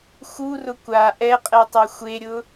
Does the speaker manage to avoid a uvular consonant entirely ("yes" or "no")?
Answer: no